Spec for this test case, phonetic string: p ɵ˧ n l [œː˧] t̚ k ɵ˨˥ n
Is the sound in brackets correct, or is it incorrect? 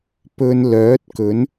incorrect